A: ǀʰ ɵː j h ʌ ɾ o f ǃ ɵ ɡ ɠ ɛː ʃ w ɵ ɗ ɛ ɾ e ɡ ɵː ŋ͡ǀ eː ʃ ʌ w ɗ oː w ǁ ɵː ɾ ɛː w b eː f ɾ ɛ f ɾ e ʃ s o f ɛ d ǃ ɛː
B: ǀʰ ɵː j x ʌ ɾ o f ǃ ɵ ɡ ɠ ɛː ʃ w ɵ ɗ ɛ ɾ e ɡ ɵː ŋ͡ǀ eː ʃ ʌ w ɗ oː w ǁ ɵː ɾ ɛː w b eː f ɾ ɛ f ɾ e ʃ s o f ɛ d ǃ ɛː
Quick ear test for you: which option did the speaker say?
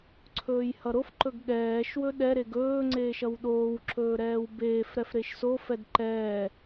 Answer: A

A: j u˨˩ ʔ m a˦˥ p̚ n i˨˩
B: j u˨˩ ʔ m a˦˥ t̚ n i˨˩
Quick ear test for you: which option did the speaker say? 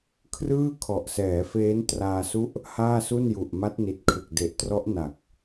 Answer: B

